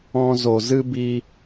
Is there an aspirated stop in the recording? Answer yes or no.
no